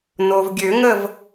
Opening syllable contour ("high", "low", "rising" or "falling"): low